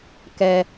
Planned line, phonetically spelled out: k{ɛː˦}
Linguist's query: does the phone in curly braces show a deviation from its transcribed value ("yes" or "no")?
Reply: yes